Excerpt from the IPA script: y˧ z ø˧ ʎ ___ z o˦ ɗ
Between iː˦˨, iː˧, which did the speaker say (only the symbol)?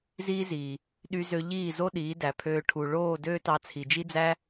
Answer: iː˦˨